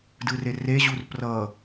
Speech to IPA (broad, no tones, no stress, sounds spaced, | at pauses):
d ɯ r e r e ʑ u r p r ʌ